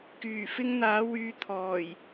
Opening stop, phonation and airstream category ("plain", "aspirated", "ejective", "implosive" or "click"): plain